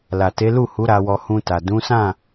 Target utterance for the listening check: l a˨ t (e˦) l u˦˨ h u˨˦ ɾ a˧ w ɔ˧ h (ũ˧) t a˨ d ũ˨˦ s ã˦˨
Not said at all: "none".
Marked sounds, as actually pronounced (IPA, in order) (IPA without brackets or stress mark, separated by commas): e˨˦, ũ˧